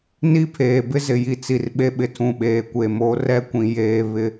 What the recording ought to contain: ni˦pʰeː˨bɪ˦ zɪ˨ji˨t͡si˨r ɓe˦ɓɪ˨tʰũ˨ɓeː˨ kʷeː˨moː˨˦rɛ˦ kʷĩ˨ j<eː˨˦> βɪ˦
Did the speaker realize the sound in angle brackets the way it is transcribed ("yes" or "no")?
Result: no